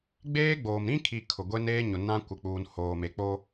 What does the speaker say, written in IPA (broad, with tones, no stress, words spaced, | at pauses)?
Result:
ɡ͡beː˦ɡ͡boː˨m ɾĩ˦kʰi˨ kʰʊ˨ɡʷe˦neː˦ ɲʊ˨nã˦kʷɪ˨k͡puː˨n hoː˨me˨k͡po˦